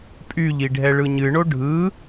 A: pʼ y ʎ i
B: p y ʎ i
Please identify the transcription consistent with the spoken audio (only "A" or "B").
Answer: A